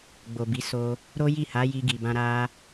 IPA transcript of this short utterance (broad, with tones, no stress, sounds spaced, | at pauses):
ɡ͡b o˨ b i˨˦ s o˧ | ɾ o˦ j i˦˨ h a˨˦ j i˧ ɡ i˨ b ã˧ ɾ a˧